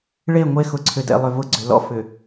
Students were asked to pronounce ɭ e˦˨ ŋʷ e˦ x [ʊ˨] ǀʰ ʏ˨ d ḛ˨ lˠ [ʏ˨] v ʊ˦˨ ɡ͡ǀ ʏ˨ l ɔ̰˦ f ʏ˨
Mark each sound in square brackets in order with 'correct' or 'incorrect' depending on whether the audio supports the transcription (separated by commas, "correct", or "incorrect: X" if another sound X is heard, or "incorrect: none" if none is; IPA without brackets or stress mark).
correct, correct